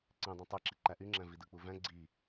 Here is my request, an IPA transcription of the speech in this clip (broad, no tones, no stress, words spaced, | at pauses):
ǀẽdˤĩ tˤeǁi ǃæʔyŋ͡ǁæ̃vi dɯk͡puvæ̃ ɡ͡ǀi